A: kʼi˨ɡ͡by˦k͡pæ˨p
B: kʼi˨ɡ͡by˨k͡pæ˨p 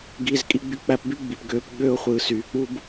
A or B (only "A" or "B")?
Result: B